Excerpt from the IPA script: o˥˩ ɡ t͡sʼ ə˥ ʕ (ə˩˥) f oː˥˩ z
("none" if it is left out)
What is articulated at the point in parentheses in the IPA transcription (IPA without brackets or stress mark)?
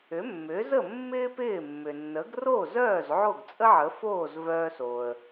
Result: ə˩˥